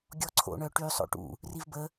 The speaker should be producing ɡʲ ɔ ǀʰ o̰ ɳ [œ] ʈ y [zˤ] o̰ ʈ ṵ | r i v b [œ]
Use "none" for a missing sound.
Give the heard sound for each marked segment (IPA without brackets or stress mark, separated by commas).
œ, sˤ, ə